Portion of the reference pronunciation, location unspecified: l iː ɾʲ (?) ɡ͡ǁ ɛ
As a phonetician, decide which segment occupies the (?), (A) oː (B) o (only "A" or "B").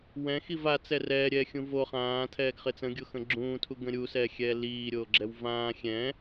A